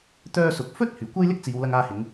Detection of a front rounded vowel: present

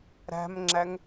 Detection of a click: present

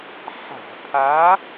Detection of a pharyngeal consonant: present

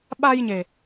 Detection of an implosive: present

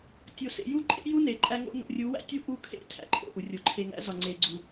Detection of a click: present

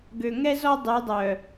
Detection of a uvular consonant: absent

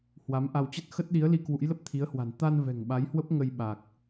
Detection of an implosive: present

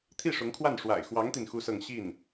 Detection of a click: absent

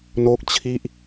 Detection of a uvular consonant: absent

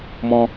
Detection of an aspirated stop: absent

